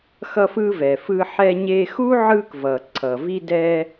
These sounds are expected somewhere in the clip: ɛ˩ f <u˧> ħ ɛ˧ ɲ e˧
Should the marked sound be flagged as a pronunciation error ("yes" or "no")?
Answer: yes